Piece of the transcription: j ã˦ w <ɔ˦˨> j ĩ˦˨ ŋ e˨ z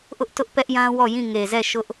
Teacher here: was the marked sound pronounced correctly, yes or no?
yes